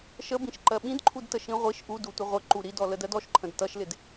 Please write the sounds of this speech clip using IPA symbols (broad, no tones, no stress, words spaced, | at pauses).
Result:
ʃəbĩʃ ǃɜɓĩdǃʰudtə ʃĩʁʷiʃ ʔudutʷə ʁʷəǃu ɾidɔ lədɜdɔʃǃʰə̃d tʌʃlɪd